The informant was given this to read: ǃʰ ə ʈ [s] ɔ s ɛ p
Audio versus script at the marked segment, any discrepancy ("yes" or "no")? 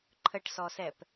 no